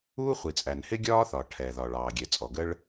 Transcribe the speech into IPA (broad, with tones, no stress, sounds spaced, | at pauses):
uː˥ χʷ i˩ t͡sʼ æ˩ n h ɪ˥ ɡʲ ɒː˥ θ ɒ˩ ʈʰ ɛ˩ ð ɒ˩ ɭ ɑː˩ ɡʲ ɛ˩ t͡sʼ ɔ˩ ɡ ə˥ ɭ